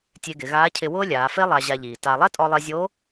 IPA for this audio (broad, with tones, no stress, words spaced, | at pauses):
tʲe˧ɡɪ˩˧ɣaː˧˥cʰɪ˧ wʊː˥lʲaː˩˧fe˥ lˠa˧ʑa˧ʎiː˩ ta˧ lˠɛ˥tʼɔ˧lˠe˧zʲo˧˥